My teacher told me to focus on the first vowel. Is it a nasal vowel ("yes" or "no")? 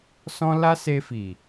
yes